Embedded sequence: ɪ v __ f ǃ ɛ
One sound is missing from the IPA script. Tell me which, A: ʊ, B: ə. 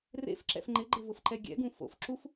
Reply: A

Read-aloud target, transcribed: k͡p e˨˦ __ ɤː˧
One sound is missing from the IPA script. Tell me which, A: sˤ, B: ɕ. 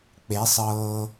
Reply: A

